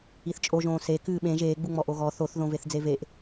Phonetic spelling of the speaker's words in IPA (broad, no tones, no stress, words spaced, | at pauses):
iθt͡ʃʼoʒõː se kɨːɓẽ ʒeːɡ͡buŋ͡mɔ ʔoɣɔ θoθ ðõveθd͡zeveʔ